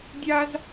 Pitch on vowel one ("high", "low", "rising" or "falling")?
high